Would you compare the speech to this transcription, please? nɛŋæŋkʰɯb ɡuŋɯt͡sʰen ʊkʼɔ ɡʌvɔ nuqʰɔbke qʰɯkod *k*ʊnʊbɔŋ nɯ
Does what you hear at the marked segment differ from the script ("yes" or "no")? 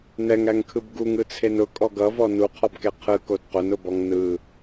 yes